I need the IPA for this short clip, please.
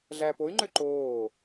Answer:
ɮæpoy̯ŋ͡ǃø ǃoː

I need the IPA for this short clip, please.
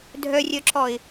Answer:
dʱœrʲœǁɔɪ̯

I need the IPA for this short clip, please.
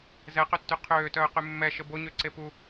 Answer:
zɛqøtːy qʰøːtœːqy mːɛʃə boɲøǀe pu

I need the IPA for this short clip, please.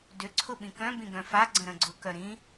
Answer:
dʏ ǀʰʊɓĩkœ̃ bĩɡœ̃fa ɡ͡ǀə̃ɾə̃ɡ͡ǀʊ kœɾĩ

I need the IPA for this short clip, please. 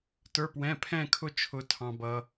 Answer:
tə˞˧˥˧pwɛ̃˧˥˧ pʰɛ̃˥˧kʰʊ˥˧t͡ʃʰʊ˧ tʰɑ̃˧bʌ˧

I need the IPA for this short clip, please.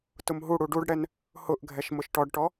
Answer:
tʊmɦuɽu ɖuɖɽɛn | hʊʔ ɡʱɛʃmʊʃʈɔɖʈɔ

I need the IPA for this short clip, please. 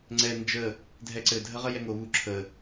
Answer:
ŋ͡ǀɛ nd͡ʒə | dʱɛǀɘ dʱəʁəjɛŋo βu ǁʰə

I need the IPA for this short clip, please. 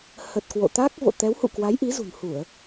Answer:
hə˨˩t̚ kwo̰˧˨t̪a˦˥k̚ vo̰˧˨t̪ɛ˨˦whṵ˧˨kwa˨˦j ʔi˨˦zṳ˨˩n hu˧˩˨ə̯

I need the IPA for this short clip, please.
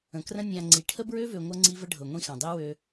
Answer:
ə̃˨krə̃˦ nʲã˨ ŋ͡ǀi˨ ʈʰə˦bɹø˦vø˨ ŋʷɤ˦ŋ͡ǀi˦və˦ ɖʱɤ˨ŋʷĩ˦xã˨ dˤi˦ wø˦

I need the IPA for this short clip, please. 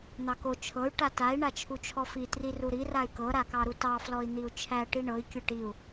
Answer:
n̪ɑko t͡ʃʰɤy̯ ʈatai̯ ɳat͡ʃʰut͡ʃʰɔfi triruɾi ray̯kɤ ɾakɑɾutɑ flɔi̯n̪iu̯t͡ʃʰæ ʈiɳɤi̯ kʲɤʈiu̯

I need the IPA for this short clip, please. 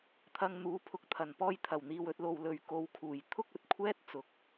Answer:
t̪ʰɐ˧ŋn̪uː˨˥pʰʊ˧k̚t̪ʰɐ˨˩n pɔː˧jt̪ʰɐ˨˩wn̪iː˨w ɵ˧t̚lo˨wlɵ˨ɥ ko˨˧wkʰuː˨˩j t̪ʰʊ˥k̚ɵ˨t̚ kʷʰɛː˥t̚t͡sʊ˨k̚

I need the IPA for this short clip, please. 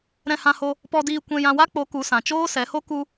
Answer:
ɾɛ̃˧hã˧ho˧ | pɔ˧diː˧ kʷɛ̃˧jã˧wa˦k͡po˨˦ ku˨˦sã˨ t͡ʃoː˦sɛ˨˦ho˦ ku˧

